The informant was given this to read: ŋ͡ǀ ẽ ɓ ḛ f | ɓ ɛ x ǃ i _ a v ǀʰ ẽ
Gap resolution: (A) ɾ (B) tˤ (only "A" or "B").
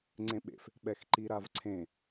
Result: A